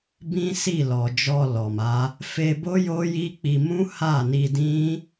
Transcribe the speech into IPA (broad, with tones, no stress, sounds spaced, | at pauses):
b ĩ˦ s i˦˨ l ɔ˨ d͡ʒ ɔ˧ l ɔ˨ m a˨˦ | f e˧ b o˦ j o˦ j i˦ k͡p i˧ m ũ˦ h a˦˨ n i˧ d ĩ˦